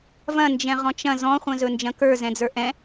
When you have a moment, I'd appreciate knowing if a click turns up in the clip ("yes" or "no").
no